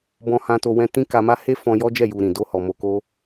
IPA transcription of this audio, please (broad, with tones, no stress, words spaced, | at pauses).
bɔ̃˧hã˧to˧wɛ̃˧ tĩ˦ka˧ma˦ he˦fɔ̃˧ jɔ˦ d͡ʒɛ˦˨ ju˧ɾĩ˨ do˧hɔ˨ mo˧ko˦